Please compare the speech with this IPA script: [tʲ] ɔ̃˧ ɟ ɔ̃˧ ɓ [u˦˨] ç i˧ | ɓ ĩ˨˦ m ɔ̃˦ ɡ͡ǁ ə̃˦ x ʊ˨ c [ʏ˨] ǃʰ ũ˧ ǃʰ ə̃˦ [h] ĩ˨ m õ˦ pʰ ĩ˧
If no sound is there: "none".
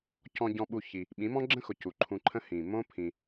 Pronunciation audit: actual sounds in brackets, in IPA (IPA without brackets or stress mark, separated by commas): c, u˧, u˨, h